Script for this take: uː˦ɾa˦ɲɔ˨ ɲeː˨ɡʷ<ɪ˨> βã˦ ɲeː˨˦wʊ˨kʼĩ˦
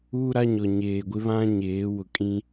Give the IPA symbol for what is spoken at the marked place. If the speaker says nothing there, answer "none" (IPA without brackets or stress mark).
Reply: ɪ˦